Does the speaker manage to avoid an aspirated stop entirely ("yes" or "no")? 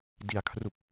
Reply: no